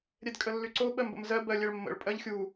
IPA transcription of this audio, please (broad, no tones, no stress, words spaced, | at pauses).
ɾʲɛdkʼəlːyǀo ɓɜmbə̰mzɜ bɜlʲɛɭmːə̰ɭ pʼɜʎxʲu